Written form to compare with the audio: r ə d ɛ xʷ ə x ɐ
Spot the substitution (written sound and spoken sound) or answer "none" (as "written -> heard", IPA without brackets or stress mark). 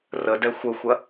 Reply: x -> xʷ